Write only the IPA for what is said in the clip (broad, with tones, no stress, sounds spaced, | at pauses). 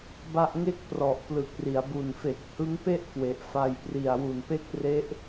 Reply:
b a˥˩ ʔ ŋ e˦˥ k̚ p r ɔ˨˩ ʔ p l ɯ˨˩ k̚ r i˩˦ a̯ b u˨˩ n f e˨˩ k̚ h ɯ˦˥ ŋ p e˥˩ ʔ k w e˨˩ ʔ f a˧ j p r i˨˩ a̯ w u˨˩ n p e˦˥ k̚ r e˦˥ ʔ